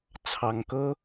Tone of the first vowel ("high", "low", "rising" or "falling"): low